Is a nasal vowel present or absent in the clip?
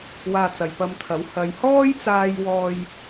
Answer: absent